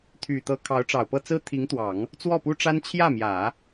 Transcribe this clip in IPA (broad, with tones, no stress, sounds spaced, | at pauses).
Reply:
t̪ʰ y˨˩ t̪ ɤ˧˥ kʰ ɑ˧˥ ʊ̯ ʈ͡ʂ ɑ˨˩ ʊ̯ p ɤ˥˩ t͡s ɹ̩˥ t̪ʰ i˧˥ ŋ t̪ w ɑ˨˩˦ ŋ | t͡s w ɔ˥˩ p u˥ ʈ͡ʂ a˥ n t͡ɕʰ j ä˥˩ m j ä˨˩˦